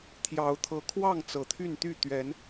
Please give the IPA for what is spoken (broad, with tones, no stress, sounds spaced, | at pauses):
t̪ʰ j ɑ˨˦ ʊ̯ t̪ʰ ɤ˨˦ kʰ w ɑ˥˨ ŋ t͡s ɤ˨˩ t̪ʰ y˥˨ n t̪ y˥˨ t̪ ɥ ɛ˨˦ n